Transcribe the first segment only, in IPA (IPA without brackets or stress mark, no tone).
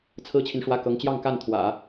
t͡sʰ